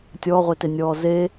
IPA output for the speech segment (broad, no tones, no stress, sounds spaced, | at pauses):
tʲ ɔː ʁʷ e t e nʲ ɔː z e